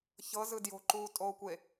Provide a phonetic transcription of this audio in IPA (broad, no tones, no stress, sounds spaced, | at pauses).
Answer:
ç ɤ z ɯ d j o̤ ǃ uː tʼ oː kʷ e